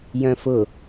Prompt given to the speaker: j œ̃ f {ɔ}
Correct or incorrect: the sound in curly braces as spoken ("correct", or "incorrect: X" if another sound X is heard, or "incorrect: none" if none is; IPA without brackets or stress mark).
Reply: incorrect: ʊ